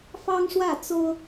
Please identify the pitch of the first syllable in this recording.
high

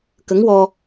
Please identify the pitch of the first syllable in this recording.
rising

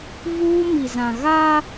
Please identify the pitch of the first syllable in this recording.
high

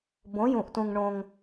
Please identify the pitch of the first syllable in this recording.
rising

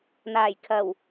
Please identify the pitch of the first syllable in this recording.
low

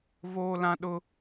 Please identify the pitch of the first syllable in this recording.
high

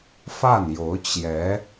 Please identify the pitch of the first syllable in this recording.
falling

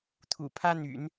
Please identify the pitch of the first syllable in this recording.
low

